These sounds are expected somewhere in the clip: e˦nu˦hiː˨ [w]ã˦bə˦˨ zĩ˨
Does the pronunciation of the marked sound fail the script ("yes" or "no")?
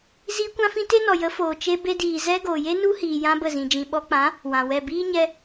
yes